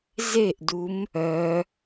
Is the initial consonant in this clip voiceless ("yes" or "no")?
no